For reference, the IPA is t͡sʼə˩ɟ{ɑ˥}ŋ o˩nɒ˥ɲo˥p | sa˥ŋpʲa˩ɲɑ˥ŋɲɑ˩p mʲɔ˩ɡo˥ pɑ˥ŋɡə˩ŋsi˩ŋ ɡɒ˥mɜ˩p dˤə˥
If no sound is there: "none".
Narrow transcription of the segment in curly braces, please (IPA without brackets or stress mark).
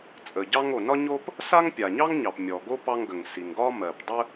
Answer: ɑ˥